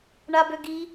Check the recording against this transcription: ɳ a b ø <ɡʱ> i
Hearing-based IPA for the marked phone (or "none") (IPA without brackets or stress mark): ɡ